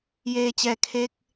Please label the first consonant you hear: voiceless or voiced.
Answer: voiced